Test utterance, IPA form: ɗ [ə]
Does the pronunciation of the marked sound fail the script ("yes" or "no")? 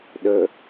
no